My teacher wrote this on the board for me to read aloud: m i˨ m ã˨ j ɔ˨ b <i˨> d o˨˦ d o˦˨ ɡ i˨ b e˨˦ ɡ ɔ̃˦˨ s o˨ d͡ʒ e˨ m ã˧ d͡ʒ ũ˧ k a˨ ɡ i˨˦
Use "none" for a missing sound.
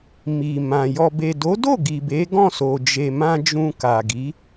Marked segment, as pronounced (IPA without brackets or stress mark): e˨